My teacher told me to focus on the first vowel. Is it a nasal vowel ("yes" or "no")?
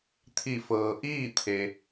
no